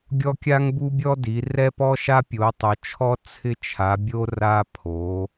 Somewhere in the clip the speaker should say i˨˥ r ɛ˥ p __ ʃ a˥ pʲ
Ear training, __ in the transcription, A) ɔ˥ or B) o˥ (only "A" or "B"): A